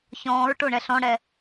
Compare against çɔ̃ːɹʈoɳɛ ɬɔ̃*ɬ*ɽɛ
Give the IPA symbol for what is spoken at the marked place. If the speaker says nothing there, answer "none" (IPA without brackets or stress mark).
none